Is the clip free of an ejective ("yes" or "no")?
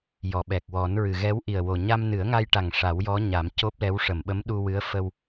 yes